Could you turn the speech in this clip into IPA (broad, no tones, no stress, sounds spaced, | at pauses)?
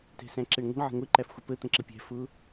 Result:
t ɛ̤ s æ̃ ǁ ɛ ɳ ŋʷ ə̤ ɳ ʕ ə̤ ŋʷ ɪ ǃ æ f xʷ ə p ə t̪ ə̃ ǁ ə pʲ æ̤ f ʊ